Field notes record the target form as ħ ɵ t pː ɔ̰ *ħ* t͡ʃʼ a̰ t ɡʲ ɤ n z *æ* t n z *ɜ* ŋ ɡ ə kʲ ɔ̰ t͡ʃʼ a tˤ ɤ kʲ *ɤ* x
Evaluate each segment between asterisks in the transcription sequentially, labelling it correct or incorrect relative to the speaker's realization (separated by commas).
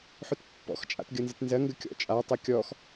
incorrect, incorrect, correct, incorrect